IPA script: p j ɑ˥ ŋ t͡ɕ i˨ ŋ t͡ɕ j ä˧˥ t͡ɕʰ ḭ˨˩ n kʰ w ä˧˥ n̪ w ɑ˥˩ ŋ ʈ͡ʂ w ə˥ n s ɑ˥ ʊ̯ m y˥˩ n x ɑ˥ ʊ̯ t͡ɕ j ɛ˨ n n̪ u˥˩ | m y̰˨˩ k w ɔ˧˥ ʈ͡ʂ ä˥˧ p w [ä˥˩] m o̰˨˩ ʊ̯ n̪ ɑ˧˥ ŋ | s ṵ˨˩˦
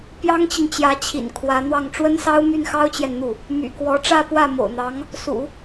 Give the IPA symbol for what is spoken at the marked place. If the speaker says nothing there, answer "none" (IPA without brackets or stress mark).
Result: ä˥˩